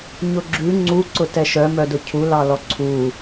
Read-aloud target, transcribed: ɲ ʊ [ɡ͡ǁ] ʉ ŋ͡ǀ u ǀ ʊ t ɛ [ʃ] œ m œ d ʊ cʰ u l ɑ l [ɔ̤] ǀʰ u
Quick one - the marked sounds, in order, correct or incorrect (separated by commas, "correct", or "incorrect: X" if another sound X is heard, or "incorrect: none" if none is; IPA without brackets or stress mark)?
correct, correct, incorrect: ɔ